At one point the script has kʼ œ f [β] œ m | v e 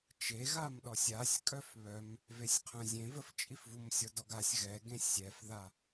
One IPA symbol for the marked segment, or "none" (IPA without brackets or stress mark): β